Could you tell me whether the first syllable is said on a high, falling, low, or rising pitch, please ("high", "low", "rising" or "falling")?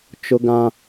high